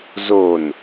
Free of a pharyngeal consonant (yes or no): yes